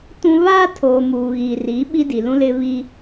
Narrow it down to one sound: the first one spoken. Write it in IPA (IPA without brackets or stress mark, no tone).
t